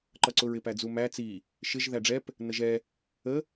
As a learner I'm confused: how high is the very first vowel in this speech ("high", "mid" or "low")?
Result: mid